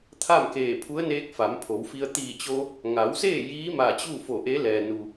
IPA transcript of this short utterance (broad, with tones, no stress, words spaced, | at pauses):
t̪ʰa˥˨mkeː˧˩pʰu˧˥ə̯neː˧˥k̚ fa˩˧mpʰo˩˧wfi˧ə̯ t̪iː˧˩t͡ɕo˧ | ŋa˩˧wseː˥˨ jiː˧˥ma˧˩ t͡ɕu˥˨fo˧˩ʔe˧˥ lɛː˩nu˩